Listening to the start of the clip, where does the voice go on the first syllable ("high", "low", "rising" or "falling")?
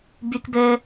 high